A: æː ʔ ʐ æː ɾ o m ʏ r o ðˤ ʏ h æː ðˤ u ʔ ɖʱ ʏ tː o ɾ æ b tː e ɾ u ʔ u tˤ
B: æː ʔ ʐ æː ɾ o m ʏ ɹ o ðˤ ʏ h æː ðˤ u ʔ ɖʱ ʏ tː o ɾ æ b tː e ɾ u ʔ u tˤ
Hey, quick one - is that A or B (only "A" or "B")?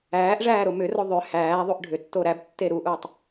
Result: A